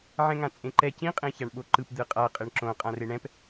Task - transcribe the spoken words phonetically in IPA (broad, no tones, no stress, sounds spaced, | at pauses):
ʕ ɛ̃ ŋ ã t͡sʼ ẽ ǃ ɛ c ĩ qʼ ẽ ç a ɳ ɓ o ǃ ɯ p d̪ ɯ qʼ a qʼ e ɳ ǁ õ qʼ ã r e ɳ ɛ̃ p